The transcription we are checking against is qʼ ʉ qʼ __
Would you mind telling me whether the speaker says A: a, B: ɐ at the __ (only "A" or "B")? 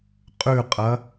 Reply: B